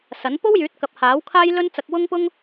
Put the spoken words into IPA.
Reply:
s ɐ˨˥ n p o˥ w j yː˨˥ t̚ k ɐ˨ p̚ h aː˨˥ w kʰ aː˥ j l ɵ˥ n t͡s ɐ˧ k̚ w ʊ˥ ŋ p ʊ˥ ŋ

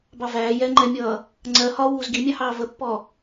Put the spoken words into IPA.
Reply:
b ɑ v æː j ɛ ŋ͡ǃ ɛ mʲ ʌː | ŋ͡ǀ ɜ h ɒ w uː z ɡ i mʲ ɑ h ɑː v ə pː ɔ

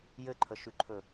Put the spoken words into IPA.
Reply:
j ɘ ǃʰ ə ʃ ʉ ǃʰ ɵ

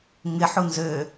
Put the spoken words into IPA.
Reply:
ŋ ɪ ħ u n z ø

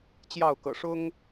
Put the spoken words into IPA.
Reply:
t͡ɕ j ɑ˥˨ ʊ̯ k ɤ̰˨˩ ʂ ʊ˦ ŋ

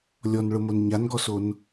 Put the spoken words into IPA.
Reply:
lʲ ɔ n ɭ ʊ m o n ɲ a n ɡ ɔ s o n

